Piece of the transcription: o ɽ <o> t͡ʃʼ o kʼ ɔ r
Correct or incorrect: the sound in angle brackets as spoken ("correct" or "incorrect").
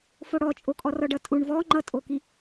incorrect